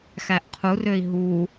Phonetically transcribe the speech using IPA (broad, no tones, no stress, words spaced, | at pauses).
xæʔqʰurøi̯ ɦu